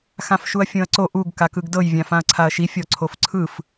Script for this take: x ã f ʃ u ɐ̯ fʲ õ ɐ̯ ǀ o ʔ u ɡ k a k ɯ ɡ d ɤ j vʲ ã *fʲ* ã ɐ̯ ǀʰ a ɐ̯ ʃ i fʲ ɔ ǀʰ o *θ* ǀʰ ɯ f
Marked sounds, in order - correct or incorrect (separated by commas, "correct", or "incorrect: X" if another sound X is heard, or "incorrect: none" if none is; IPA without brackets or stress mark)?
incorrect: f, incorrect: f